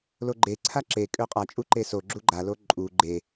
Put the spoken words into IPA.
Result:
l o ɡ͡ǃ e ǀʰ a ǁ e kʼ ø qʼ a t͡ʃʼ u ǃ e s o ɡ͡ǁ u ɡ͡ǃ a l o ǃʼ u ɡ͡ǃ e

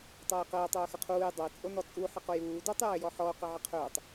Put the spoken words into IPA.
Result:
tˤ əː e̯ q əː tˤ ɵː x ʌ qʰ uː j dˤ ə e̯ t͡sʼ o n ɔ t͡sʼ u ħ ə q o j uː d u tˤ j ʌ e̯ j ɔ ħ ɔ o̯ q ə ʕ ə qʰ ɵː tˤ

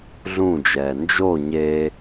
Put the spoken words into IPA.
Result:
ɮ ũ d͡ʒ ɛː n d͡ʒ o ɲ e

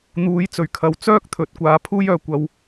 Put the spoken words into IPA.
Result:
n̪ uː˨˥ j t͡s ɵ˨˩ ɥ kʰ ɐ˨ w t͡s œː˥ k̚ t̪ʰ ɵ˨˥ t̚ kʷ aː˨˥ pʰ uː˥ j œː˨ kʷ ɐ˧ w

